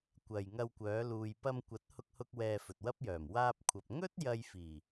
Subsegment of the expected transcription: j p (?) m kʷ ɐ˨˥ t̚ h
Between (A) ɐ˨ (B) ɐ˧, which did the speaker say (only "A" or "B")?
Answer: B